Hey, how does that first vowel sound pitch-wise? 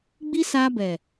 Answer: high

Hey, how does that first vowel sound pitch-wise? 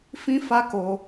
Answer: high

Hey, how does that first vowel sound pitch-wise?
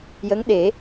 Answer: rising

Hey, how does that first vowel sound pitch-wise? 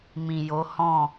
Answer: low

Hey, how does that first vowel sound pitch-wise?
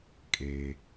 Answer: low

